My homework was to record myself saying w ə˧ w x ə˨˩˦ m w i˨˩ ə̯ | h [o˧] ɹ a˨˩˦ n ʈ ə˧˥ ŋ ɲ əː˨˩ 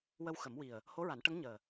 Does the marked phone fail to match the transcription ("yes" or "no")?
yes